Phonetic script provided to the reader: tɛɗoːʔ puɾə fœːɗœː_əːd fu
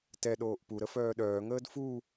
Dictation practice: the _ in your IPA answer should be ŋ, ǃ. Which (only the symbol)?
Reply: ŋ